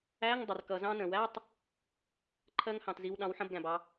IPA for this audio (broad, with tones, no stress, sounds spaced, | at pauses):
æ˧˥˧ ŋ dˤ ə˩ r k ʌ˩ z ɑ̃˧ n ə̃˩ w æ˧˥˧ tˤ | ǃʰ ɜ˧ ŋ h ɑ̃˩ t z i˩˧ w ɗ ɑ̃˩˧ w ħ ə̃˧˥˧ b ɡ æ̃˩ b ɑ˩˧